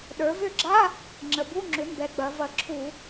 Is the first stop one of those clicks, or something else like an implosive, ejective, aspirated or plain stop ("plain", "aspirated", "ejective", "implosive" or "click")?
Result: implosive